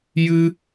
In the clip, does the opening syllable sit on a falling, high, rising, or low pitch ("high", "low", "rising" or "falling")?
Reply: high